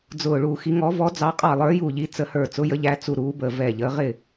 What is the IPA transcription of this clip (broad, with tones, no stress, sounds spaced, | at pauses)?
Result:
d͡z ʊː˧˩ ɭ u˧˩ x i˨˦ ŋ ɔ˨˦ v ɔ˨˦ d͡z ɑ˨˦ qʼ ɑ˧˩ lˠ ə˞˨˦ j u˧˩ ʎ i˨˦ t͡s ə˨˦ h ə˞˧˩ t͡s ʊ˨˦ j ə˨˦ ʎ æ˨˦ t͡s u˧˩ ɾ uː˨˦ b əː˧˩ v ɛ˧˩ ʎ əː˨˦ ʁ ɪ˧˩